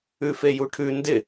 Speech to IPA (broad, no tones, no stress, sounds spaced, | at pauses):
ʉ f e j u ʈʰ ʉ n d ɪ